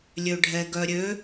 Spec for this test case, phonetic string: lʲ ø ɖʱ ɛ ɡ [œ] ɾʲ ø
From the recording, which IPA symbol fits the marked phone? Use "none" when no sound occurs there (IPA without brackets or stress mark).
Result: œ